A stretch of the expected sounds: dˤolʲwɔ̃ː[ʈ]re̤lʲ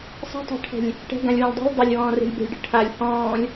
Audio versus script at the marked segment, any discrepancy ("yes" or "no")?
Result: yes